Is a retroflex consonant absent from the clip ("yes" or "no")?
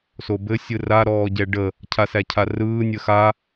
no